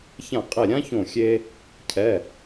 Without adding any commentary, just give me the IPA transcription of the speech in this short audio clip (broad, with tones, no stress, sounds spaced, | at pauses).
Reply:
ç ã˧˩ qʼ e˧˩ ɾʲ ã˥ ç õ˧˩ xʲ e˧ | cʰ ɛ˩˧˩